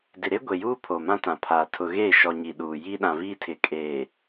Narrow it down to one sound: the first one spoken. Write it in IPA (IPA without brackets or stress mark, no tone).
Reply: d